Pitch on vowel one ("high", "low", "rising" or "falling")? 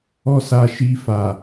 high